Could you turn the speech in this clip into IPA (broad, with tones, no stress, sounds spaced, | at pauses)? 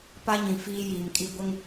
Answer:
p a˦ ɲ ĩ˨ f iː˦ j iː˨ m kʼ i˦ ɡʷ ɪ˦ ŋ